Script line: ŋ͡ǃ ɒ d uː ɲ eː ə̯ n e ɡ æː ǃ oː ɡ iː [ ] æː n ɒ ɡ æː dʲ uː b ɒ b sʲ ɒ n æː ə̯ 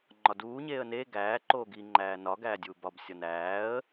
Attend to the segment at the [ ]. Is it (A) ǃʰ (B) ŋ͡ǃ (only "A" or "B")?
B